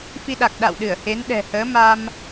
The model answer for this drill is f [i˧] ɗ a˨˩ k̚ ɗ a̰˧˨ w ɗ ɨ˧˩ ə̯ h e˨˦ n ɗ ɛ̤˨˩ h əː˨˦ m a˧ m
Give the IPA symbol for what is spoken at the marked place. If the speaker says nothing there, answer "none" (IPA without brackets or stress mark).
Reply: i˧